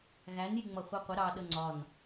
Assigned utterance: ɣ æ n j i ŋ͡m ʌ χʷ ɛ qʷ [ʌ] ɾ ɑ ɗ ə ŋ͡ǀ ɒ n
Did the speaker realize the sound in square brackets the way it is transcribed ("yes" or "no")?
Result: no